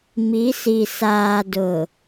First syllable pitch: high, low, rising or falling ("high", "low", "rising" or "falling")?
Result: rising